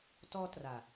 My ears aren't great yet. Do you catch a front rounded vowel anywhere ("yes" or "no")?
no